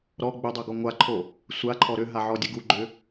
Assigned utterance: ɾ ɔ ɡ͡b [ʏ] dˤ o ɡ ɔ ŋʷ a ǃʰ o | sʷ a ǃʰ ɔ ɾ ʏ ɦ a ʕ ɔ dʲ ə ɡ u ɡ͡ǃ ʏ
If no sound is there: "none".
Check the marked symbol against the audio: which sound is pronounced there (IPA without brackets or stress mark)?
ʏ